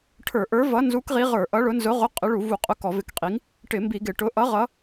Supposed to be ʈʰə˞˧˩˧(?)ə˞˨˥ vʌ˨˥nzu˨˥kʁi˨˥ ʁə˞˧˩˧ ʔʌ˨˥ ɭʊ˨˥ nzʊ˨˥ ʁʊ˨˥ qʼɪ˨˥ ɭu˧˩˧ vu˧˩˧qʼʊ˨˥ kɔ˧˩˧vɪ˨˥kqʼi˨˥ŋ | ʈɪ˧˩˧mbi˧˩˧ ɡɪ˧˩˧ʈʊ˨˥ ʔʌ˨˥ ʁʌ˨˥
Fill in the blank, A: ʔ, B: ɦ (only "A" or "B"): A